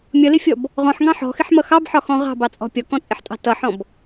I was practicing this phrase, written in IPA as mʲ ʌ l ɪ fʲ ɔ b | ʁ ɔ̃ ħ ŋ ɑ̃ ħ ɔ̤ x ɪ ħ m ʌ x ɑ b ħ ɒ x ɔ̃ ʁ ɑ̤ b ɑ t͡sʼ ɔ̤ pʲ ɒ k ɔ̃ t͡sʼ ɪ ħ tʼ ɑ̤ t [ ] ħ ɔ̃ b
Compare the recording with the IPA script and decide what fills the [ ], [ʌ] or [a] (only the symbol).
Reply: ʌ